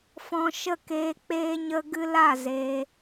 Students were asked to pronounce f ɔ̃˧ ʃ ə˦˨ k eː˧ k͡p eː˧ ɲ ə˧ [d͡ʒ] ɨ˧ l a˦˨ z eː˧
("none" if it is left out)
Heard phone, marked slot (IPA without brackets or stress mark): ɡ